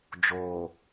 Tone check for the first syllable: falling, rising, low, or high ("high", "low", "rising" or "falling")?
low